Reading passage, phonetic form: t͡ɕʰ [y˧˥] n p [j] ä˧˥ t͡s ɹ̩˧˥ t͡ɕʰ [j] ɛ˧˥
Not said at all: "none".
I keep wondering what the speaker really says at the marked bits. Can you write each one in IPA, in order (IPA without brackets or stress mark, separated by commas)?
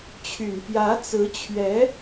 y˨˩, j, ɥ